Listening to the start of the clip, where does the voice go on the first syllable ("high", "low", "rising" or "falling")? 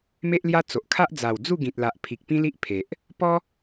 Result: high